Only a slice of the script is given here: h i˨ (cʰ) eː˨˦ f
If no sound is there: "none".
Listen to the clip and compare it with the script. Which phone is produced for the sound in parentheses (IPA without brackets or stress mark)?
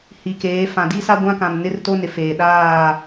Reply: k